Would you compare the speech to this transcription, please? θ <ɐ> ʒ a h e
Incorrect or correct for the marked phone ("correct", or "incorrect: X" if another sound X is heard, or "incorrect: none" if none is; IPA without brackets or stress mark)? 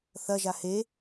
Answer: correct